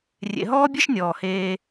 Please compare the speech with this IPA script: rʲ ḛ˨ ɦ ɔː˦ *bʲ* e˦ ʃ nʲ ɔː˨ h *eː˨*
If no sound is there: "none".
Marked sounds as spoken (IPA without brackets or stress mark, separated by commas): bʲ, eː˦